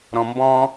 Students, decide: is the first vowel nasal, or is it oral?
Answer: nasal